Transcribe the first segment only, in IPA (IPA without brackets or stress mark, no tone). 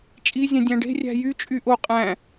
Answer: t͡ʃʼ